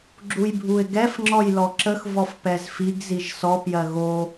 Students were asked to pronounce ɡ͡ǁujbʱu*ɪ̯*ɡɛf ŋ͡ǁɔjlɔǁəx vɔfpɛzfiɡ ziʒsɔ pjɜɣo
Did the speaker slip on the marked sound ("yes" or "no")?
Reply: no